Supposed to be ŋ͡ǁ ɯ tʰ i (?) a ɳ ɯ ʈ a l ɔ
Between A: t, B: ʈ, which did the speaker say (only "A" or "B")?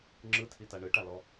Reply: A